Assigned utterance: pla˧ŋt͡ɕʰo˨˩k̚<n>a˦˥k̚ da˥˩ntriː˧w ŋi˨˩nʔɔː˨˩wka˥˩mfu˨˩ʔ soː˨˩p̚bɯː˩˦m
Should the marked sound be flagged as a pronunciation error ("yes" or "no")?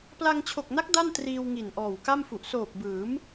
no